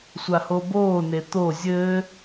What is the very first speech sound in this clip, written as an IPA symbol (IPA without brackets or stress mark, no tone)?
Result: sʷ